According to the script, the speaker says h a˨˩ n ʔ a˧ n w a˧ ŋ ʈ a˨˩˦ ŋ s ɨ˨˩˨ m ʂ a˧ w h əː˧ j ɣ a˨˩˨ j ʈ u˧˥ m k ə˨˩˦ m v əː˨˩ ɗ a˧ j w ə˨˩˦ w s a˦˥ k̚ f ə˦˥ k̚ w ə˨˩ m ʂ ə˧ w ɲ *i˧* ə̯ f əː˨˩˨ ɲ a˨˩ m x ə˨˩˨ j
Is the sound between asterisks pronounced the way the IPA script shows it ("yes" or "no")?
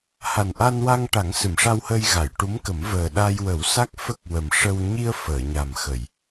yes